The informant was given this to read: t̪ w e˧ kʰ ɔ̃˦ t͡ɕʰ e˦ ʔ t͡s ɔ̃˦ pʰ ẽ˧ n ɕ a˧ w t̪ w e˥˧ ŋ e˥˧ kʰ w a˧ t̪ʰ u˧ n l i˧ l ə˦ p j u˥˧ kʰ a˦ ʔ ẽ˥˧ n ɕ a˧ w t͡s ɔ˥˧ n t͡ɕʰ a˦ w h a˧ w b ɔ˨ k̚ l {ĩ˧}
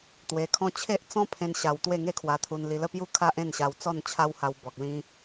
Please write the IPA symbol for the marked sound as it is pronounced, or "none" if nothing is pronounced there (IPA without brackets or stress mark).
ĩ˧